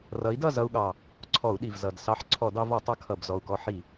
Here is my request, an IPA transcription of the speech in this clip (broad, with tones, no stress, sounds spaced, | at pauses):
r ʌ˨˥ i̯ d ʌ˥˨ z ʌ˧ u̯ ɠ ɑ˨˩ | ǀʰ ɔ˧˩˧ u̯ ɗ i˨˩ v z ʌ˨˩ d s ɑ˧ ħ ǀʰ ɔ˧˩˧ d ɑ˧ v ɔ˧˩˧ tˤ ʌ˨˥ kʰ ʌ˨˩ b z ɔ˨˩ u̯ k ɔ˧ ħ i˧˩˧